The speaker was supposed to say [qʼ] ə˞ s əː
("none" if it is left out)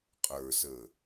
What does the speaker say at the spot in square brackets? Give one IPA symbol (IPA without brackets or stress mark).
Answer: qʼ